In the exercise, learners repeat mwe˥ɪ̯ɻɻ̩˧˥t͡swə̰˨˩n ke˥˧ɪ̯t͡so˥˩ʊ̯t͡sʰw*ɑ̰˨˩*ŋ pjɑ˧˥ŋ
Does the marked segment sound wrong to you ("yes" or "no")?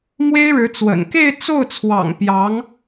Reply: no